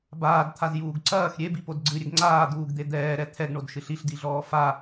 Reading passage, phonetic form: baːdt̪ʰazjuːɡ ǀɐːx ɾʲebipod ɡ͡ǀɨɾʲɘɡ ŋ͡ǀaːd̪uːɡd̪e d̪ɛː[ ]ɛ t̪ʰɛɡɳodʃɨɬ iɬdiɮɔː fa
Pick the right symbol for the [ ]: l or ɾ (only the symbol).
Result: ɾ